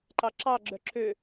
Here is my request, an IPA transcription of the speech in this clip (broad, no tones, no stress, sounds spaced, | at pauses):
ǃ ɑ ǁ ɑ ɡ͡ǁ œ ǁ ø